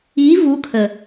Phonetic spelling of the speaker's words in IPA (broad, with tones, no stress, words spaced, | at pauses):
iː˧˥ vu˧˥kʰə˨˩